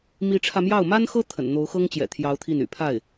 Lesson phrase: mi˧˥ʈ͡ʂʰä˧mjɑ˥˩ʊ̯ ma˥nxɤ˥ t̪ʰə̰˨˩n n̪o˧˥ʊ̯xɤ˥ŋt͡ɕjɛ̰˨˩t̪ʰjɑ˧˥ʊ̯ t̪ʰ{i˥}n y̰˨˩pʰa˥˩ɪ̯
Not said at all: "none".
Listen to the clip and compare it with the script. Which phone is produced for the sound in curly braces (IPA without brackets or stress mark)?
i˥˩